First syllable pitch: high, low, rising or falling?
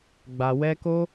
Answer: low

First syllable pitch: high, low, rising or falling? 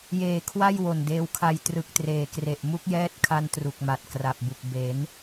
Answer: low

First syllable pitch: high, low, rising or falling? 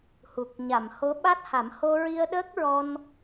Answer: low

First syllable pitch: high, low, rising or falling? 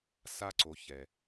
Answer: high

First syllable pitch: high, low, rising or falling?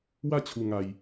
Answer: falling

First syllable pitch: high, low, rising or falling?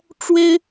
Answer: high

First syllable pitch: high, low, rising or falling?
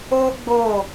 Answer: high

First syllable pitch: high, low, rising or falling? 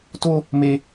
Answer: high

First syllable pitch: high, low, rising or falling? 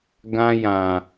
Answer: high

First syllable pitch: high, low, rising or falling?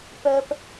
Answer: high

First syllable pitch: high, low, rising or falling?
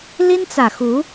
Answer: high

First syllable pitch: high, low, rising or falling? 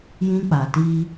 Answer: high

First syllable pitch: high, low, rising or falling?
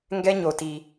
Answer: high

